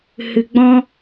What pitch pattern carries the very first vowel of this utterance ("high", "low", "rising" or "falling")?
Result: low